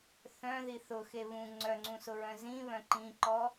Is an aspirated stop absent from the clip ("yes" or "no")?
yes